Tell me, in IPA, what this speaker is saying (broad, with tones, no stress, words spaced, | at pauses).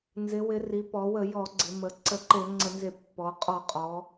nzɪ˩˧wɪ˩˧ ri˩˧pɔ˩˧ wə˧˩˧jɔ˧˩˧ɡ͡ǀɪ˩˧mə˩˧ ǀə˧˩˧ǃe˧˩˧ ŋ͡ǀə˧˩˧nze˧˩˧ pːɔ˩˧qʼɔ˧˩˧ qʼɔ˩˧